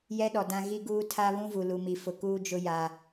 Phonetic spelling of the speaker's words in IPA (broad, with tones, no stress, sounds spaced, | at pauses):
j ɛ˦ ɗ ɔ˨ d ã˦ ɣ i˦ ɡ uː˦ tʰ a˦ β ũ˦ v u˨ l u˨ m i˨ f ʊ˨ k uː˦ d͡ʒ ʊ˦ j a˦